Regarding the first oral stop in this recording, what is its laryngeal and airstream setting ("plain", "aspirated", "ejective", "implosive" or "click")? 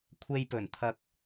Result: aspirated